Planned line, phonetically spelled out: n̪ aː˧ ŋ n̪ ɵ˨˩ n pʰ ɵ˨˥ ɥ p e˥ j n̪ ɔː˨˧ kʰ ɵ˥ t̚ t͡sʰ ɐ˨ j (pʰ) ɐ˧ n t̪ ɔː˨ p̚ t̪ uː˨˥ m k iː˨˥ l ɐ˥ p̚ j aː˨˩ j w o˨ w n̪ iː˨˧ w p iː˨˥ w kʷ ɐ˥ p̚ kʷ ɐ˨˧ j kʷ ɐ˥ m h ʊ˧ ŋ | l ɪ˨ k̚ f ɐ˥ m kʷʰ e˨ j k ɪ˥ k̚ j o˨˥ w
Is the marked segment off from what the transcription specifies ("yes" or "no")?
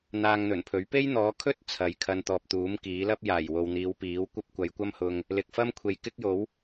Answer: yes